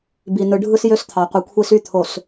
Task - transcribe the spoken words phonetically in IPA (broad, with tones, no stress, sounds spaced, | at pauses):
b i˨ n ɯ˨ ɖʱ ɯ˦ s j ø˦ s t̪ʰ ɑ˨ qʷ ɯ˨ kʷʰ i˦ s y˦˨ t̪ʰ o˨ s